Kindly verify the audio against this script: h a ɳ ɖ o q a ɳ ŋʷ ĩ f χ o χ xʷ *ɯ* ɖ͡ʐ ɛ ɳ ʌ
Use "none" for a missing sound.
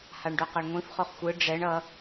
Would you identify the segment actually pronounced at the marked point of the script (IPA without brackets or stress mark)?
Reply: ɯ